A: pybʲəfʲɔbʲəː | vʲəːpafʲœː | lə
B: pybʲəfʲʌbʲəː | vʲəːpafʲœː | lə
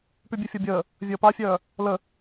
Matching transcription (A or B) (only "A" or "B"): A